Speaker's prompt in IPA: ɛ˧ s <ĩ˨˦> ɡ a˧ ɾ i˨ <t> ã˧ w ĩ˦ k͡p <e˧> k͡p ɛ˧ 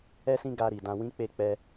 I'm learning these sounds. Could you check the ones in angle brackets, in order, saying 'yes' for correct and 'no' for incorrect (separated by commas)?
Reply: no, no, yes